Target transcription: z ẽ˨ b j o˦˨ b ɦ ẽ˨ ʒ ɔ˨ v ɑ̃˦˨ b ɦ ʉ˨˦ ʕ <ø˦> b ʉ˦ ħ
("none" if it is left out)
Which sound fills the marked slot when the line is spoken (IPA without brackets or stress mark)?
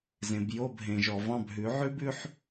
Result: ʉ˦